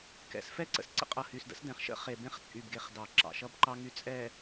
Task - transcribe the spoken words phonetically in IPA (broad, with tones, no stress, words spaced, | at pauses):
kɛ̰˨sfɛ˦ ǀə̰˨sǀə̰˦qʼʌ˨ hy˨sdə̰˦sdɛ̃˨χʃə̰˦ χe˨bẽ˦χt͡sʼy˨bɡe˨χ dɑ˨ǁɑ̰˨ʃʌ˦bǃɑ˦ ŋy˨t͡sʼɛ˨